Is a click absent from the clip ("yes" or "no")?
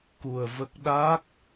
yes